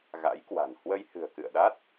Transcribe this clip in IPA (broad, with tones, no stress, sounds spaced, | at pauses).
ɣ a̰˧˥ j k w a̤˨˩ n h w ə˧ j h ɨ̤˨˩ ə̯ k ɨ̰˧˨ ə̯ ɗ a˦˥ t̚